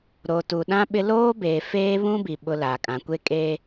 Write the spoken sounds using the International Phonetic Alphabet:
ɾ o˨ t u˨ ɗ ã˦ ɓ ɪ˦ l oː˦ b eː˨ f eː˦ β ũ˦ b i˨ ɓ ʊ˦ l a˨ kʼ ã˨ kʷ e˦ kʼ eː˦

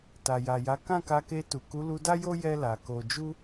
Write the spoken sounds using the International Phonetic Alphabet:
t a˨ j a˨ j a˨˦ k ã˦˨ k a˧ k e˧ t u˨ k u˨˦ l u˧ d a˦ j o˦ j ɛ˦ l a˧ k o˦ d͡ʒ u˦

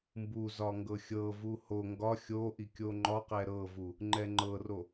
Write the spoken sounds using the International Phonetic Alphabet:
m b u z ɒ ŋ ɡ ɤ xʲ ɤ v u h o ŋ ɡ ɒ xʲ o ʔ i kʲ o ŋ͡ǃ ɒ q ɛ ɾ ɤ v u | ŋ͡ǃ ɛ ŋ͡ǃ ɤ r o

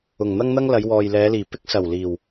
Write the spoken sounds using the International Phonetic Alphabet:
ʊ˨˩ ŋ n̪ ɐ˥ ŋ n̪ ɐ˥ ŋ l ɐ˨˧ j w ɔː˨ j l ɛː˨˧ l iː˨˩ p ɪ˥ k̚ s ɐ˨˩ w l iː˨˩ w

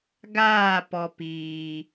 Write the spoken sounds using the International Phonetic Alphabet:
ɡ aː˦˨ p ɔ˨ p iː˨

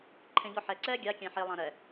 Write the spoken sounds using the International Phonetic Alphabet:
ǃʰ ẽ ʎ ɔ ħ ɛ ǀ ɛː ɡʲ a kʲ ɛ̃ ħ e lˠ ã ɾ ɛ

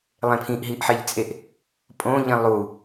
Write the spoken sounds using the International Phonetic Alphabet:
lˠ ẽ pʰ ĩ ʔ ɦ i ʔ ħ e ʎ t͡sʼ e ʔ | pʼ õ ʎ ĩ lˠ u

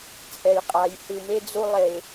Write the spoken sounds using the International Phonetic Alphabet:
t͡sʼ ɛ˨ j qʼ a˨ j h ɯ˨ m e˦ d͡z u˦ lˠ e˨

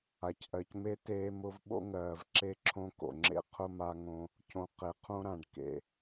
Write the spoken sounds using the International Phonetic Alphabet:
a˨ c ʔ ɜ˨ c m e˦ t eː˦ m ʊ˦ v ɓ o̰˦ ŋ ɜː˨ v ǁ e˦ ǁʰ õ˦ k o̰˨ ŋ͡ǁ ḛ˦ qʰ ʊ˦ m a˦ ŋ õ˦ | cʰ õ˨ q e˨ qʰ õ˦ ɾ ã˨ ɖ k ḛ˨

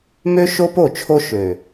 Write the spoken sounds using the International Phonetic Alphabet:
m ø˦ ʃ o˦ p o˦˨ t͡ʃʰ o˦ ʃ ø˨

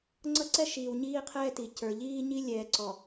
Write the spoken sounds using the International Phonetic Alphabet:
ŋ͡ǀ ʌ˦ ǀ ɛ˦ ʃ iː˨ w ɲ iː˦ qʰ ɛː˦ t i˨ c ə˞˨ ʎ iː˦ ɲ i˦ lʲ ɛː˨ ǀ ɔ˨

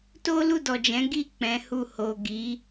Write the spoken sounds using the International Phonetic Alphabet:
t o˦ l u˦˨ d ɔ˨ d͡ʒ ɛ̃˨˦ ɡ i˦˨ k͡p ɛ̃˨˦ h u˦˨ h o˨ ɡ i˨˦

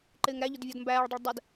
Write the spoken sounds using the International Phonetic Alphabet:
ǃ ɪː ŋ ɾ æ ʎ ʊ d vʲ ɔ d m b æː ɭ dˤ ə ɭ dˤ ə d

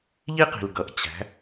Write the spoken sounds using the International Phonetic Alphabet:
ʎ i˥ q i̤˩ l ɡ ʌ˩˧ ʔ t͡ɕ æ̤˩˧

